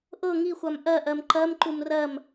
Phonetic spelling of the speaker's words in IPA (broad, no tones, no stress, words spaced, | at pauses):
ʔɤ ŋixʷam ʔɜʔɜm ǃɜmǃum rɜm